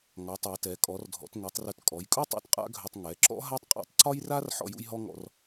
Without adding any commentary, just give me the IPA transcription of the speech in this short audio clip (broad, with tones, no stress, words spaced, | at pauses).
ŋɒ˩˧ tˤɛ˩˧tɛ˩˧ kʼɔ˩˧rdʱɔ̰˩˧tŋɛ˩˧tˤrɵ˧˩t kʼɔ˩˧jkʼu˥ tˤṵ˥tqʼa̰˥ɡʱɵ˧tˤ ŋɛ˩˧ǁɔ̰˥ ɦa˥tˤqʼa̰˥˧tˤ ǀɒ˥jra˥r ħɔ̰˥˧jṵ˥jɦɔ˥ŋɔ̰˧r